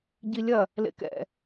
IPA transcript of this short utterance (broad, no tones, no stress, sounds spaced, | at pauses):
ɟ i lʲ ɐ | l ḛ k ɛ̰